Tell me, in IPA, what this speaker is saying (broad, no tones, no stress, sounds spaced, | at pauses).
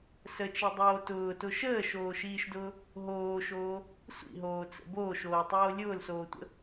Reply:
s ə t͡ʃ i dˤ oː t ʊː t ʊ ʃ əː ʃ oː ʃ iː ʃ d ʊː | ɦ oː ʃ oː | sʷ ḭ ɦ oː t͡s ə̰ b oː ʃ oː tˤ oː lʲ ʊː l s oː tʷ ə̰